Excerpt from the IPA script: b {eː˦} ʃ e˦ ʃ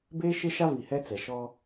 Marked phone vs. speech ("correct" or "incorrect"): correct